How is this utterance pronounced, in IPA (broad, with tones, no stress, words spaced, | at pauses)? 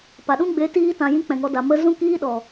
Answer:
pa˨ɗũ˦ ɡ͡be˨˦ tiː˧tã˨ jĩ˦k͡pɛ̃˨ŋɔ˧ da˨ mə˧ zũ˦kiː˦ɗɔ˨